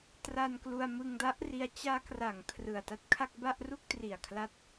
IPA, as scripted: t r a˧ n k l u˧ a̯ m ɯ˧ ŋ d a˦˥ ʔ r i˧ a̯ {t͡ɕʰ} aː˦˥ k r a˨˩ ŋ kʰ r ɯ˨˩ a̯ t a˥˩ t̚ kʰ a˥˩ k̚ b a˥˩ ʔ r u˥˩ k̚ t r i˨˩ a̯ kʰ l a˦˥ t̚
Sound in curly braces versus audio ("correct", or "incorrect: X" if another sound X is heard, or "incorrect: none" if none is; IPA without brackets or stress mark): incorrect: t͡ɕ